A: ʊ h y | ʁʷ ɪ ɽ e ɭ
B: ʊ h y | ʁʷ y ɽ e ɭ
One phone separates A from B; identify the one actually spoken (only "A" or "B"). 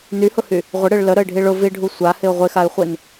A